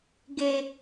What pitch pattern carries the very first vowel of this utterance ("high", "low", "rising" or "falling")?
high